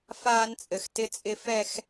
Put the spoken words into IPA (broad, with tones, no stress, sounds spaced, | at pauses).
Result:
f aː˦ n t͡sʼ ɘ˨ x t ɪ˦ t͡sʼ ɪ˦ f ɛ˦ x